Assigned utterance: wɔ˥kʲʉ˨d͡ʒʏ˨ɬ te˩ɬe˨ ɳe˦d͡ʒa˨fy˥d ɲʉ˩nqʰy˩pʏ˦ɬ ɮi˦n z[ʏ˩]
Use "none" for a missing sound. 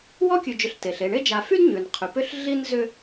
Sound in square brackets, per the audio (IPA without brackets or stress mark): ʏ˦